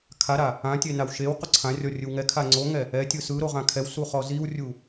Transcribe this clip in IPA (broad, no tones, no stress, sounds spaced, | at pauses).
kʰ a ɾ a | ã tʲ e n a w ʃ e w q o ǀʰ ã rʲ ɔ rʲ ɯ w ŋ ɛ kʰ a ŋ͡ǀ o ŋ ɛ | ɛ tʲ ɯ s ɯ ɾ o ʁ ã kʰ ɛ w s u χ ɔ z i w rʲ u